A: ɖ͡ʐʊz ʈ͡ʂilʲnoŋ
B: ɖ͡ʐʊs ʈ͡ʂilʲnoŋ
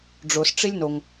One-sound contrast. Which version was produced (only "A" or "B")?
B